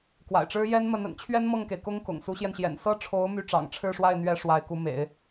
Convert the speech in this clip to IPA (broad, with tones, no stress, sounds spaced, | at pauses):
k w a̰˨˩ ɪ̯ ʈ͡ʂ ɻ̩˥ j ɛ˥ n m ə˧˥ n ə̰˨˩ n t͡ɕʰ ɥ ɛ˥ n m ɤ˥˩ ŋ k e˩ ɪ̯ k ʊ˥ ŋ k ʊ̰˨˩ ŋ s u˧˥ ɕ j ɛ˧ n ɕ j ɛ̰˨˩ n s ɤ˥˩ ʈ͡ʂʰ o˧˥ ʊ̯ m y˥˩ ʈ͡ʂ ɑ̰˨˩ ŋ ʈ͡ʂʰ ɻ̩˥˧ ʂ w a˥˩ ɪ̯ n̪ ɥ ɛ˥ ʂ w a˧˥ ɪ̯ k u˧˥ m ḛ˨˩˦ ɪ̯